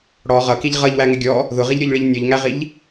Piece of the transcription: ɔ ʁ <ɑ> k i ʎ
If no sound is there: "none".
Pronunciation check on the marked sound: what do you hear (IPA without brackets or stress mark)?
ʌ